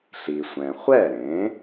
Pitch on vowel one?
low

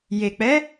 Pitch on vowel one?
low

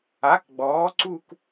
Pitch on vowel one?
rising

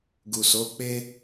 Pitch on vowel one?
low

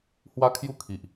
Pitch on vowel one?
high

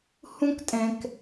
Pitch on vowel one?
high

